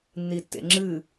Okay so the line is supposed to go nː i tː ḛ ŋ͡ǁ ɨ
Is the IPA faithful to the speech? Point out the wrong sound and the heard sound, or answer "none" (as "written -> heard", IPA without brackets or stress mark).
none